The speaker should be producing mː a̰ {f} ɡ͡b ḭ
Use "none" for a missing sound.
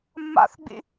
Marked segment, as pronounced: θ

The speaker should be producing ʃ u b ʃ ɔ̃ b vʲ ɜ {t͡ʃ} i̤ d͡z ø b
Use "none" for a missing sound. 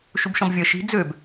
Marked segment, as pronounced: ʃ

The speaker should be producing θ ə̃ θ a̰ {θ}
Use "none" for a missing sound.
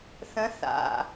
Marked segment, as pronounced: none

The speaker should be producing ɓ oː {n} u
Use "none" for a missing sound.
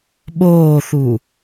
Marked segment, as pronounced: θ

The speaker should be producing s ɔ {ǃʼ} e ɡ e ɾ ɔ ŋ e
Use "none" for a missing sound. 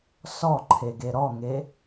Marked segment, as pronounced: ǃʰ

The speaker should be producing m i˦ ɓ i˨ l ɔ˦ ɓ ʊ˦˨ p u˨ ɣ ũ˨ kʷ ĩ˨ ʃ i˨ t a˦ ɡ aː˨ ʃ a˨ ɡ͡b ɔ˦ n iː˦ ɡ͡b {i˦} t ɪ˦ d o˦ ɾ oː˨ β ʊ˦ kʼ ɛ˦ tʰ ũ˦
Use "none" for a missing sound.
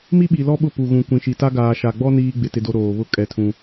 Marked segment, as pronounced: ɪ˦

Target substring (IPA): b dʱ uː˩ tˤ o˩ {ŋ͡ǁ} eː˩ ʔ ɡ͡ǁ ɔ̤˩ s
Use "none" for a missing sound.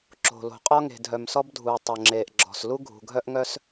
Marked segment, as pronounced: ŋ͡ǁ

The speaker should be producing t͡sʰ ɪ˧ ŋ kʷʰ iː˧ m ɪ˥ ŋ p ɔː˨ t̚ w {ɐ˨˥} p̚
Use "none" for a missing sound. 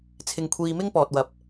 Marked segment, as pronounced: ɐ˨˥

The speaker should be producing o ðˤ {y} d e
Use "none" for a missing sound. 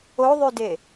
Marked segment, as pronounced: y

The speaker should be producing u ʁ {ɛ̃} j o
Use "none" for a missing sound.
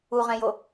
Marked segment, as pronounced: ɛ̃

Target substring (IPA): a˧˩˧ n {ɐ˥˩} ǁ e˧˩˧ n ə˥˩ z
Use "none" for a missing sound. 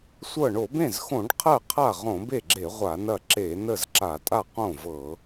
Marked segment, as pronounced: ɐ˥˩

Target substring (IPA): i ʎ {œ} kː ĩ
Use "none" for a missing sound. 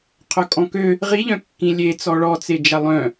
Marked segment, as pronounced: œ̃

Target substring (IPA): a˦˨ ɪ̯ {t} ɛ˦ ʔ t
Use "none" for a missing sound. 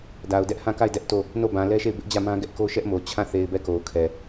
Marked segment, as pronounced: d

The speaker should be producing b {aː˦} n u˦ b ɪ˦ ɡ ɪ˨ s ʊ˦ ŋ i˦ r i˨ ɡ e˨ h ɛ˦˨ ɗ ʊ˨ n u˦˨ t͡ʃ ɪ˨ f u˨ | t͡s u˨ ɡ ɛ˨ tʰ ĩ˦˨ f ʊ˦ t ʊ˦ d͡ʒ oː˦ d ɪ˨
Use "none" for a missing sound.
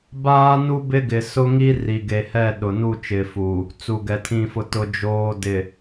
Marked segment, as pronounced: aː˦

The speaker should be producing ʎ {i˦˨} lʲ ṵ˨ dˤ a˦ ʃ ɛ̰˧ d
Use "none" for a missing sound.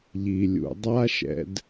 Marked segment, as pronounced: i˨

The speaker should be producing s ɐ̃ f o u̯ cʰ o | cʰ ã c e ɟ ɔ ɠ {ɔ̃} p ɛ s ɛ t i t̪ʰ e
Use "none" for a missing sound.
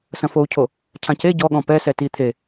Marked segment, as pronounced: ɔ̃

